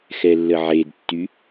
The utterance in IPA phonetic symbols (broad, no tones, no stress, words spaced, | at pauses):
xɛlːəʕedtːy